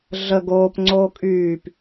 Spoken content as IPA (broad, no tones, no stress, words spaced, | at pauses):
ɮə ɡoːpŋ͡ǀoː kʼyːp